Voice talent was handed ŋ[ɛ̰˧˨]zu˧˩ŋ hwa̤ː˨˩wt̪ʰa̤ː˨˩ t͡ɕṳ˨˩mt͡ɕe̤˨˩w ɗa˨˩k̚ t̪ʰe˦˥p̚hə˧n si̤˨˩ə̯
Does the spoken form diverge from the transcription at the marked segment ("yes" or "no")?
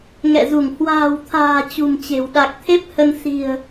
no